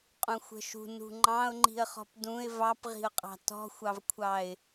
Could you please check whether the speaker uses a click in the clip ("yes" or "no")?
yes